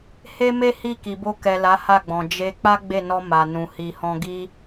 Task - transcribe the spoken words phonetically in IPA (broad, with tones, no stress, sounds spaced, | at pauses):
h e˦ m e˦ h i˦˨ k i˨ b o˧ k ɛ˨ l a˨˦ h a˦˨ ɡ͡b ɔ̃˨ d͡ʒ e˧ k͡p a˦ ɡ͡b e˦˨ n ɔ˧ m a˨ n ũ˨ h i˨ h ɔ̃˧ ɡ i˦